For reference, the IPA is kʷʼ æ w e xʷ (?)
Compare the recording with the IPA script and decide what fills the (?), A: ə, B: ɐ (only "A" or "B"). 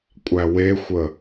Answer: A